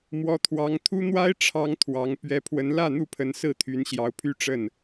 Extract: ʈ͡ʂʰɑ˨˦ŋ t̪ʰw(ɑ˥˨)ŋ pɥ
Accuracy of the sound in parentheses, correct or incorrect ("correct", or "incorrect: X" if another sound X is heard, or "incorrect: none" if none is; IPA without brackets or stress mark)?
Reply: incorrect: ɑ˨˦